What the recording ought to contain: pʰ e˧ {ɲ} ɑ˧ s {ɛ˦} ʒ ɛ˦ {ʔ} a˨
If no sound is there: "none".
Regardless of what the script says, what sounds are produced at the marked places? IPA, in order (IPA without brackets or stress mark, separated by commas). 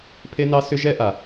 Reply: n, ʏ˦, ʔ